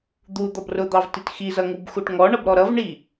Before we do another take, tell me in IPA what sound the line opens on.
d̪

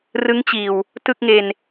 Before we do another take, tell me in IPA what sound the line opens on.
r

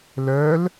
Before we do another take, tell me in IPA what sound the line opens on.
l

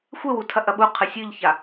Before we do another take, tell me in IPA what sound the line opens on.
xʷ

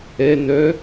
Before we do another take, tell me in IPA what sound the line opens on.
ɛ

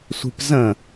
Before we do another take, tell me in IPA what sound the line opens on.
sʷ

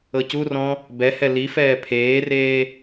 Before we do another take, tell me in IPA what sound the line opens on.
ɤ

